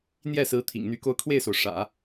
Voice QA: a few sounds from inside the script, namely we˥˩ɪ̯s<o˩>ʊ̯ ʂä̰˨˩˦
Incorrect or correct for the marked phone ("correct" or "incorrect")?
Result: correct